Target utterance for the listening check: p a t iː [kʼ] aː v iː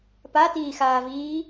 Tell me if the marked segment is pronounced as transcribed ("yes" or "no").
no